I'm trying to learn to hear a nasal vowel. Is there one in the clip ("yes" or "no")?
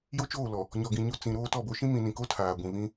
yes